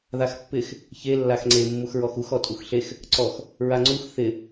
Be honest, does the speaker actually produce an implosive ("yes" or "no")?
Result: no